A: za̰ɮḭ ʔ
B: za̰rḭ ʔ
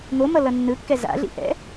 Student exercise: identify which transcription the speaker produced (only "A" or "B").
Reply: A